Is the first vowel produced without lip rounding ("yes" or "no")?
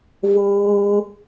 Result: no